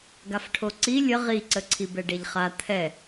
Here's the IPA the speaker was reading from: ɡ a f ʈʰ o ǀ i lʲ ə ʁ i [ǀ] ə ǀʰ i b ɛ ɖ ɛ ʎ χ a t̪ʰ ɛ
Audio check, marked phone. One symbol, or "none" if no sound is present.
ǀ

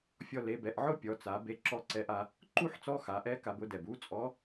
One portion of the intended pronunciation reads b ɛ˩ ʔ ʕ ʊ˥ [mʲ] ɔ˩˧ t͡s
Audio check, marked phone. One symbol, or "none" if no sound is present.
pʲ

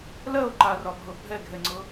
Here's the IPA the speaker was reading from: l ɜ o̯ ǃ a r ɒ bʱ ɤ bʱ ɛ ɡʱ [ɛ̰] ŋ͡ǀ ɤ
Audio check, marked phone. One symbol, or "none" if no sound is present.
ɛ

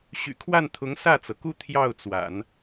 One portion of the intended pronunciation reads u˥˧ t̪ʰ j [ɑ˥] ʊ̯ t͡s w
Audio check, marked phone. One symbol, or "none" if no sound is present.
ɑ˥˩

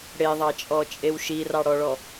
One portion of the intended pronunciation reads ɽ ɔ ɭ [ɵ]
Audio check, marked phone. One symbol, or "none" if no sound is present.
ɔ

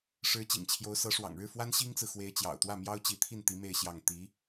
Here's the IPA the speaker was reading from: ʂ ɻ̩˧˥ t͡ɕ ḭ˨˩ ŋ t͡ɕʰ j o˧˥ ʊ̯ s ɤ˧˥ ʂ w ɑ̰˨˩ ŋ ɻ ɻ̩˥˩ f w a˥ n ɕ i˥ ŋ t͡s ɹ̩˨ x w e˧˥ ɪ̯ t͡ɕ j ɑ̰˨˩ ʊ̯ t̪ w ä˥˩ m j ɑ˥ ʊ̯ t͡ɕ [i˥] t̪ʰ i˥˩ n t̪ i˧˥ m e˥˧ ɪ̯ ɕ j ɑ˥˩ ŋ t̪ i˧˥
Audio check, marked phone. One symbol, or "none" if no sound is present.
i˧˥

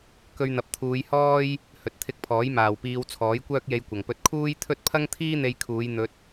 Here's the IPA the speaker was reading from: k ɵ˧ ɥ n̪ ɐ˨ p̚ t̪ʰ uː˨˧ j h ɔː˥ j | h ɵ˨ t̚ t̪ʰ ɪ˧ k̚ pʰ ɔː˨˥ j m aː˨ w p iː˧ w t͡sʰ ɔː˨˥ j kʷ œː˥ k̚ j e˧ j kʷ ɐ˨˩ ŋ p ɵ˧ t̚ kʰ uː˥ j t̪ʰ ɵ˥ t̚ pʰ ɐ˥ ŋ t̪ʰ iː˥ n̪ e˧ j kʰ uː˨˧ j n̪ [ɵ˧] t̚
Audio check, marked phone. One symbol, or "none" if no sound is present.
ɵ˧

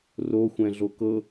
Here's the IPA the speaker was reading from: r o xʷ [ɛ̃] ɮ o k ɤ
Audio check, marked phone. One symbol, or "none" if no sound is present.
ɛ̃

